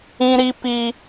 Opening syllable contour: high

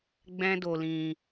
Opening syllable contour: high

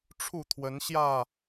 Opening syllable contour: falling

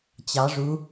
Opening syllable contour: rising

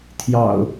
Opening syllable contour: low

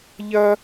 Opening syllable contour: high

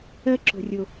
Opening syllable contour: high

